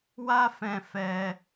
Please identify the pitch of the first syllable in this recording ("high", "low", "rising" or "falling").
high